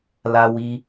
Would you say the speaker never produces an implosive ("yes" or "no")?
yes